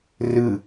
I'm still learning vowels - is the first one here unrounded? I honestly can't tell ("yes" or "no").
yes